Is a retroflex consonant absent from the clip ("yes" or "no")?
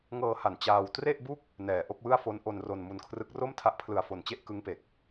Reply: yes